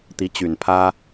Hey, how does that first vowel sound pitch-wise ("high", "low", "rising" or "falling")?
rising